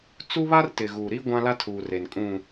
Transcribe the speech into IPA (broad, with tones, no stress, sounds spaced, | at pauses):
t͡s u˦ β a˦ r t ɪ˨ ɣ uː˨ ɾ iː˦ ɡʷ ã˦ l a˦ tʰ uː˨ r e˨ n kʼ ũ˨